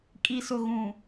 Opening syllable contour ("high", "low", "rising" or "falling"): low